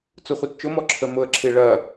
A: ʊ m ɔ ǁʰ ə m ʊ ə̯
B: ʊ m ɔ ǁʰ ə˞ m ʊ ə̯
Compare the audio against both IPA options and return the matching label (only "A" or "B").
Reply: A